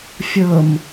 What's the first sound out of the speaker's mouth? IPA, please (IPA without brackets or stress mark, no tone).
fʲ